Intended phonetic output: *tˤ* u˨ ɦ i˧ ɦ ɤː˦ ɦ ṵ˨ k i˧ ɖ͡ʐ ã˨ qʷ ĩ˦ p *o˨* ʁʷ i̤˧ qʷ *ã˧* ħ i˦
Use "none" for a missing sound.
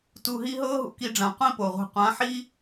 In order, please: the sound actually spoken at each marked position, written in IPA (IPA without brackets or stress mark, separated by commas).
t, o˨, ã˨˦